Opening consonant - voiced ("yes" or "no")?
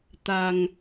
no